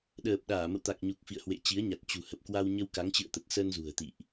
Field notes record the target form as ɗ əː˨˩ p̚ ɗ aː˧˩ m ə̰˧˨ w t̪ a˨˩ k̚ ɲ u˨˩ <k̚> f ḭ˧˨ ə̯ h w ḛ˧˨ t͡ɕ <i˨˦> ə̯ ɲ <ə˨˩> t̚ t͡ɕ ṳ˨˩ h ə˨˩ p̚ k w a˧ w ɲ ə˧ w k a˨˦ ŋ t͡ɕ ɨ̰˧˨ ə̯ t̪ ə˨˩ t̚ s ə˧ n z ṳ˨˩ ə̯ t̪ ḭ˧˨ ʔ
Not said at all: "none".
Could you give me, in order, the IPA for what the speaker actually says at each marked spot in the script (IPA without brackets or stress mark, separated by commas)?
k̚, i˨˦, a˨˩